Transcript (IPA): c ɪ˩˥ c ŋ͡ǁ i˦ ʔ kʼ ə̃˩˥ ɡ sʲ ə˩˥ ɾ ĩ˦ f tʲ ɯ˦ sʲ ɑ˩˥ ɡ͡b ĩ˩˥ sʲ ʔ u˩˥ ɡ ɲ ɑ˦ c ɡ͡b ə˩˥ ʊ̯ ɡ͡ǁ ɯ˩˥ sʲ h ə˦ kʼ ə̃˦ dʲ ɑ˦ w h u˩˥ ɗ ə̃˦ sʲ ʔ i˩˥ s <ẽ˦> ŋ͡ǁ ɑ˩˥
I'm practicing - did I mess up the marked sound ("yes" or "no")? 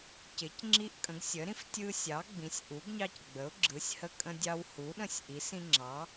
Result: yes